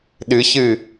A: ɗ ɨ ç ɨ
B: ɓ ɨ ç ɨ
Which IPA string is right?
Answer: A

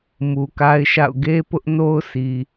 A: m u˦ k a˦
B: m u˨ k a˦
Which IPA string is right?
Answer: B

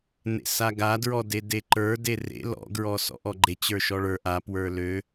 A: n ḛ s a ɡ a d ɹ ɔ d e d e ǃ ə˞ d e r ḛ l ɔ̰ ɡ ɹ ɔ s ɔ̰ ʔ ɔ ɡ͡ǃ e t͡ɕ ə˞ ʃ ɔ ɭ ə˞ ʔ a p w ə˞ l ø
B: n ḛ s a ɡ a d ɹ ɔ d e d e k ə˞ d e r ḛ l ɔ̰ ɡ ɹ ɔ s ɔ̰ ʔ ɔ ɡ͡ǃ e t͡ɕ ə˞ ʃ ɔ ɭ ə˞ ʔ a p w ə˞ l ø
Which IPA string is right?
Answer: A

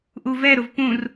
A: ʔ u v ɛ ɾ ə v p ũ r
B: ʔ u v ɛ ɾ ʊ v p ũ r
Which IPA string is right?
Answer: B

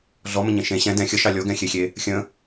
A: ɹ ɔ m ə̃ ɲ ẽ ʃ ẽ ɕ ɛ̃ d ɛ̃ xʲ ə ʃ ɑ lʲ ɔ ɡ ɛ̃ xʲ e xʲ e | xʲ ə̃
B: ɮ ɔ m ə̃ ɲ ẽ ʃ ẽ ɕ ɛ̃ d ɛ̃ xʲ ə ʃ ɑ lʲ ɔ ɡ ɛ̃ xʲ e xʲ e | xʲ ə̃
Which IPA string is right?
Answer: B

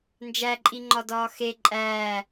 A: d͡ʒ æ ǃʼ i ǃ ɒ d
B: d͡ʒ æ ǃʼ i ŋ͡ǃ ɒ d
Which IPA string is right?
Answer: B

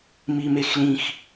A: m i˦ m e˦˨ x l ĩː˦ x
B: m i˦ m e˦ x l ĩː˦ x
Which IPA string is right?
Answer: B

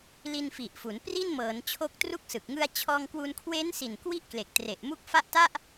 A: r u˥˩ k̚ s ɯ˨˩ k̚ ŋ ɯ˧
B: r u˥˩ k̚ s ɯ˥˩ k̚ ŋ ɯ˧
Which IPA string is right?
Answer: A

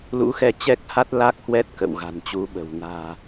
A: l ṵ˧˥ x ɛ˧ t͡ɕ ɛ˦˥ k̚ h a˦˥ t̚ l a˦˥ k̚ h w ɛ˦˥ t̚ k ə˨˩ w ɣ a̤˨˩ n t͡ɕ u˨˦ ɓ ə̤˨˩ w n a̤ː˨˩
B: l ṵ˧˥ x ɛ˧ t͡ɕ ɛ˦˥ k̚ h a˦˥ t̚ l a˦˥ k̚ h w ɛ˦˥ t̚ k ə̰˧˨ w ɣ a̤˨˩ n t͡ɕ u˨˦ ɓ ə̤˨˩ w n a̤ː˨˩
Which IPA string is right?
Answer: B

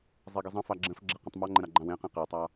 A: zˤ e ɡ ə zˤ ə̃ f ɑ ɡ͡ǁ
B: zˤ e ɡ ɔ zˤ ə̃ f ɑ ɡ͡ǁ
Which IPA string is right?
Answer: A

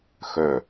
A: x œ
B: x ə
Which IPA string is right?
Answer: A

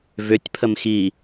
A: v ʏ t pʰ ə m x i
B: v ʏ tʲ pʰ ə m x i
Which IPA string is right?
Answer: B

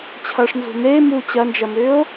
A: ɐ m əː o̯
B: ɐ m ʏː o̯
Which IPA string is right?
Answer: B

